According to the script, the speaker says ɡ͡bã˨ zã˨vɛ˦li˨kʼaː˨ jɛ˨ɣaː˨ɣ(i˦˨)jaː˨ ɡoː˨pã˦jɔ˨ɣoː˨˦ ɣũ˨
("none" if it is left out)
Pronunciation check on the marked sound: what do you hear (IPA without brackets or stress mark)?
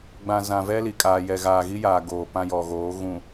i˦